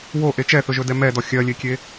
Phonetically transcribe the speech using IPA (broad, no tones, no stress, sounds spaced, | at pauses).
w o ʔ e t͡ʃ ɛ θ ɵ ʒ ɵ d ɛ m ɛ d ɔ xʲ ɜ lʲ e kʲ e